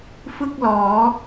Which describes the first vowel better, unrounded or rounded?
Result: unrounded